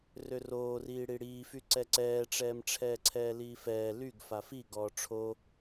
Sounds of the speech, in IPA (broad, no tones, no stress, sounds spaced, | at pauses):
r ø r oː r iː ɽ i ɽ iː f y ǀ ɛ ǀ ɛː ʈ͡ʂ ɛː m ʈ͡ʂʰ ɛː ǀʰ ɛː l iː f ɛː l y ɡ f a f i ɡ ɔː ʈ͡ʂʰ o